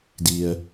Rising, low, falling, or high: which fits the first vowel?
low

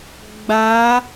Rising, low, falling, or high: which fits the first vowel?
rising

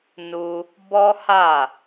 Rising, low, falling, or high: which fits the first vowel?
high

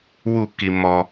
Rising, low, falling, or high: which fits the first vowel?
falling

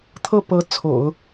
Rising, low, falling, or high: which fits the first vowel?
falling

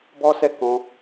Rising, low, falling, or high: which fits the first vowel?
high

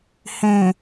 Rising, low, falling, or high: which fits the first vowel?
low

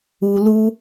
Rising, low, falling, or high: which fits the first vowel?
low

